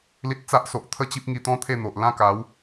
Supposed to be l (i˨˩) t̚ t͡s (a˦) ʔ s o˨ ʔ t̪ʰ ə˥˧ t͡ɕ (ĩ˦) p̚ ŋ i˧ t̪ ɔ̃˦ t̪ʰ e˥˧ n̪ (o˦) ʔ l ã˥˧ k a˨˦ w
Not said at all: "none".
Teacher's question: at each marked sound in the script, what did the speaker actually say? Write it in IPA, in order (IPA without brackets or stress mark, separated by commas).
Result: i˦, a˦, i˦, o˨